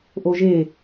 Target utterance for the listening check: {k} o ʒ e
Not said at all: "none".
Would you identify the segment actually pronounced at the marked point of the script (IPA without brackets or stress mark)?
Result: ʔ